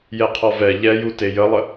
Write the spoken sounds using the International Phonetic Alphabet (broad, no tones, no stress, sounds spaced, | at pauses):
j ɛ qʰ ɔ v ɛ ʎ ɛ j u t e j ə lˠ ə